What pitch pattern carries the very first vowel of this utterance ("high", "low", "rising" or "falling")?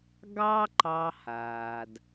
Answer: high